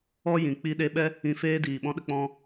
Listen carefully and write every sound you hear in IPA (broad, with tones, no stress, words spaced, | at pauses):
ɔ˦jĩ˨ k͡pi˧ɗe˧ɓɛ˦ | ĩ˧feː˦diː˨ ɓɔ̃˧ɗə˧k͡pɔ̃˧